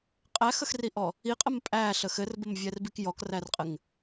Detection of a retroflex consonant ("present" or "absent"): absent